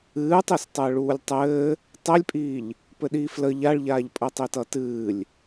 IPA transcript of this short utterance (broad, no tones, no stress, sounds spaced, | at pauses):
ɨː tˤ i s tˤ ɘː ɭ uː lʲ tˤ ɘː | tˤ ɛ lʲ pʼ iː ʎ | p ɘ ɗ iː f l ə ʎ a ɭ ʎ aː ʎ pʼ ə tˤ i t ʌ t ɨː lʲ